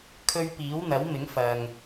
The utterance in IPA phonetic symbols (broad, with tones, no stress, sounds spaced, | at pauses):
kʰ ɵ˧ ɥ p iː˨˥ w n̪ ɐ˨˥ w m ɪ˨˥ ŋ f ɐ˨ ŋ